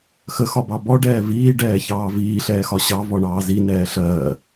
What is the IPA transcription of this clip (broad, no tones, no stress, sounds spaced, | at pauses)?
x ə x ɒ b ɑ b ɔ ɖ ɛː v iː ɖ ɛː ç ɑː v iː ɬ ɛː x ɒ ɕ ɑ v ɔ ɳ ɑː z i n ɛː ɬ ɜː